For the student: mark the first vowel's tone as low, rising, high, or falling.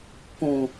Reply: low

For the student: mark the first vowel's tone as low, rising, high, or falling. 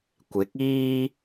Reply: rising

